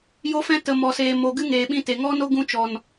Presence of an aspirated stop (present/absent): absent